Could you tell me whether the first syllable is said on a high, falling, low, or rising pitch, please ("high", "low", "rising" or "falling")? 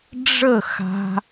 falling